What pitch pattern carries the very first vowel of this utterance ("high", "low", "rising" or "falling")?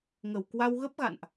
low